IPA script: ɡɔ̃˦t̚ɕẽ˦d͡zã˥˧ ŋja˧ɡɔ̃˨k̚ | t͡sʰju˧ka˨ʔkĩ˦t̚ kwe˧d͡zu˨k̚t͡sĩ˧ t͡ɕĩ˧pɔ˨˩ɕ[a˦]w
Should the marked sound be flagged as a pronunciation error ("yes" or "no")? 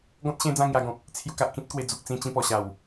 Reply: yes